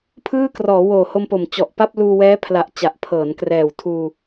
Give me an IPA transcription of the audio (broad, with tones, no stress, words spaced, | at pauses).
pʰɯː˥˩krɔː˩˦ woː˨˩ho˧mpo˨˩m t͡ɕɔ˨˩ʔpa˥˩p̚ luː˧wɛː˦˥pʰla˨˩ʔ t͡ɕa˨˩ʔpʰɤː˩˦nkrɛː˨˩w tʰuː˧